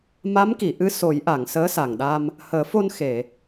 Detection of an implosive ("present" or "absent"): present